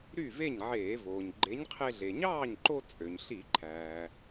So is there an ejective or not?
yes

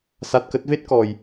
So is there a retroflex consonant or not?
no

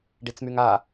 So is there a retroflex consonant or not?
yes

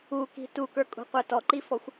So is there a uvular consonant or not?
yes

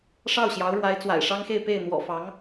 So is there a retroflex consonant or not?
yes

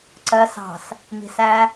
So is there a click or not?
yes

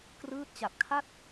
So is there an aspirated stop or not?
yes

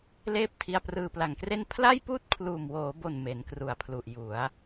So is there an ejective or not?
no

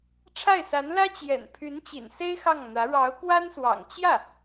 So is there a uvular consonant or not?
no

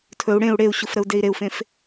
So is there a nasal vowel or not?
yes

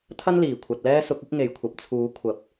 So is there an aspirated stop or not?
yes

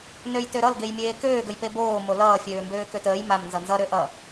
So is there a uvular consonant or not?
no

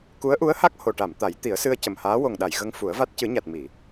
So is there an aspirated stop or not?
no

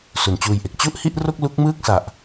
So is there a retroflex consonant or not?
no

